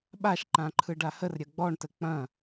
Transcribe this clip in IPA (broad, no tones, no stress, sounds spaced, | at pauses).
ɓ a ʃ ǃ ã ǃʰ ɯ ɖ a h ə r ɾʲ ɐ ɡ͡b ɔ ɳ t ə k͡p ɐ̃